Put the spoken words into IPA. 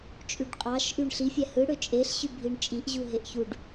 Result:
t͡ʃʼ y ɖ qʼ ɑ ʃ ʔ y ɳ ɬ i fʲ æ h ɯ ɽ ø t͡ʃʼ e ɬ ɕ y bʱ i ɳ t͡ʃʼ i ʔ ʑ u ɦ e ʔ ç u ɖ

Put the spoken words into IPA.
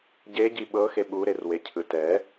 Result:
ɟ e ɟ i ɓ ɤ x e ɓ u ɾ e r w e cʰ ɯ t ɛ

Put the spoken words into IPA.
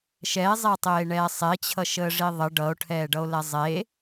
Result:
ʃ ɛ e̯ zˤ e tˤ eː ɳ ɛː sˤ e t͡ɕʰ ʌ ʃ əː ʐ i ðˤ ə ɖ ʌ o̯ ʈʰ ɛː ɖ ʌ o̯ l ɛ zˤ e

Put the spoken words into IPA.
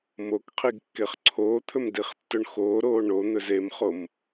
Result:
m o k qʰ i ɡ kː e χ ǀʰ oː t̪ʰ ɵ m d i χ tː ɵ ɳ x oː ɾ oː ɳ o n̪ ɵ z e m χ o m

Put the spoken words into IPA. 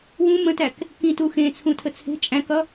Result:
w ũ m ə̃ t æ k | k ĩ t u x ẽ t͡sʰ ũ tʰ ə t͡sʰ e̤ t͡ʃʼ æ̃ k ʌ

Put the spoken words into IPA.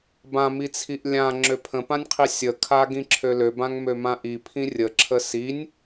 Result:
b ã m i t͡sʰ i ʔ lʲ ã ŋ͡ǁ ø pʰ ə̃ p ã nʲ qʰ i sʲ ə kʰ a ɡ ĩ ǁʰ ø l ø b ã ŋ m ø m ã ʔ i pʰ ĩ rʲ ə ǁʰ ə s i nʲ

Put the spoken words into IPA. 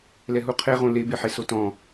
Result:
l ɛ ɦ u qʰ e ʁ õ l e b e ħ e s o t ɔ̃

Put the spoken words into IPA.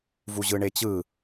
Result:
v u ʑ ɯ ɳ e t͡ɕ ɯ

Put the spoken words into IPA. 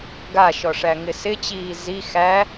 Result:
ɡ a ʃ ɔ ʂ æ ŋ ɪ s ɪ t͡ɕ iː z i x æ

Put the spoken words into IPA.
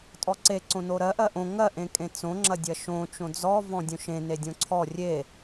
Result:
tʼ ɔ ǀ e ǀ õ n o ɾ ɜ ʔ ɜ ʔ õ ŋ ɜ ʔ ẽ kʼ ẽ t͡s õ ŋ͡ǁ ɐ dʲ ɐ ʃ õ t͡ʃ õ d͡z ɔ v ɔ̃ dʲ õ ʃ ẽ n e dʲ õ ǀʰ ɔ rʲ e

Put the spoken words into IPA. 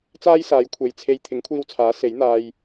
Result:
t͡s aː˥ j s aː˨˥ j kʷʰ e˨ j t͡sʰ e˧ j t̪ʰ ɪ˨˥ ŋ kʷʰ iː˧ w t͡sʰ aː˨˥ s e˨˥ j n̪ aː˧ j

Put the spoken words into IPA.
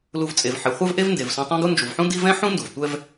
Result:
l u˨ v t͡sʼ e˩ v ħ e˩ χʷ ɛ˦ v ʔ e˦ v n d e˩ v s õ˨ tˤ ã˥ ɡ u˥ n d͡ʒ u˩ v ħ ũ˦ d i˥ v ɛ̃˥ ħ ũ˥ n d u˩ v tʷ ɛ˦ v

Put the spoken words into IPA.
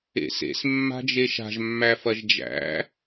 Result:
ḛ s ḛ s mː a̤ d͡ʒ e ʃ a̤ ʒ mː æ f ɐ ʒ d͡ʒ æ̰

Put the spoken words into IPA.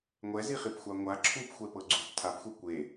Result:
ŋʷ ɛ z i χ i p xʷ a ŋʷ a ǁʰ u p xʷ ɛ p ɤ ɡ͡ǀ u p tʰ a p xʷ ɛ kʷ e

